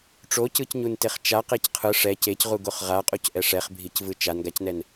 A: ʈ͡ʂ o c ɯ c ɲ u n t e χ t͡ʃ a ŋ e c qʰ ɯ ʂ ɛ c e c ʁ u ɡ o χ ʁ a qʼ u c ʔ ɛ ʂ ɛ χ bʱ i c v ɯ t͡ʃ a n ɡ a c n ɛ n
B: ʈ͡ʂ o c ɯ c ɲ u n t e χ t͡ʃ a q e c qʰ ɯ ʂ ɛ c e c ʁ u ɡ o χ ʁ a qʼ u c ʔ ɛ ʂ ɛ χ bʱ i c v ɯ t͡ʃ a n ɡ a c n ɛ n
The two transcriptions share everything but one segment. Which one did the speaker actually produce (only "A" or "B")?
B